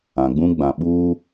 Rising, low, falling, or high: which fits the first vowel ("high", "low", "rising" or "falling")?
low